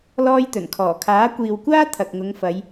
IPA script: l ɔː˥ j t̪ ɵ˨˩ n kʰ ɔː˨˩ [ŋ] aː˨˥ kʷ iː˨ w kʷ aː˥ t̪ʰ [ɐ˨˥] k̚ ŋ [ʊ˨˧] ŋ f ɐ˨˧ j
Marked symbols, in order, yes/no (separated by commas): no, no, yes